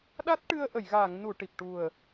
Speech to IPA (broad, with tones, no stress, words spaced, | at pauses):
ɗa˦˥t̚ʈɨ˧ə̯ ʔə˨˩˨jɣaː˨˩˨ŋnu˨˩˨ ʈi˨˩p̚ ʈu˨˩ə̯